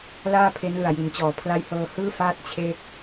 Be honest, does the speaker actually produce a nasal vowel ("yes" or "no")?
no